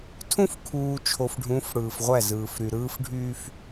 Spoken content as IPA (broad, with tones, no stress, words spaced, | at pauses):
tʰũ˦fkʰuː˨ t͡ʃʰo˨fɖʱũ˨˦f ɽɯː˨fʁʷæ˦˨zɯː˨f ɾy˨ɾɯː˦fɖʱyː˦f